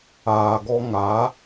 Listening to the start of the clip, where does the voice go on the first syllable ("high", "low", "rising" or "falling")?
low